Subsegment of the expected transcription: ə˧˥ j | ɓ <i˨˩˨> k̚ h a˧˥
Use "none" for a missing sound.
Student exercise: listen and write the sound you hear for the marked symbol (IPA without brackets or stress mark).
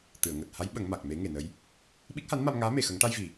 i˦˥